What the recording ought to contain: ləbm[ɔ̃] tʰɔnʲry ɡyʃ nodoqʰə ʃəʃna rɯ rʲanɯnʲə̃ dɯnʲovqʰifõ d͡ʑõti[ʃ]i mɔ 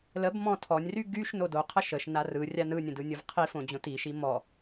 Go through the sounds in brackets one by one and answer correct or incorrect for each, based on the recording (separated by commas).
correct, correct